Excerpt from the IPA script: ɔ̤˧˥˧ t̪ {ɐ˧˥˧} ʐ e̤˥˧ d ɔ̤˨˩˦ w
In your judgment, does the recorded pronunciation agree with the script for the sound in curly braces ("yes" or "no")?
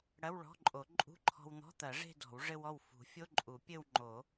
no